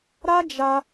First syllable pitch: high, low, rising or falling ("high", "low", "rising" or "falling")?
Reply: high